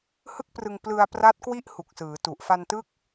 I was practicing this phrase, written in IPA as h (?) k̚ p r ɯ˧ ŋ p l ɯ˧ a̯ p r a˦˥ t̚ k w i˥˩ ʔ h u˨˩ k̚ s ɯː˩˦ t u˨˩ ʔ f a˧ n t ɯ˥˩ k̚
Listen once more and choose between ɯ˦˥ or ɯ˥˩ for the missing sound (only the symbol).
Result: ɯ˥˩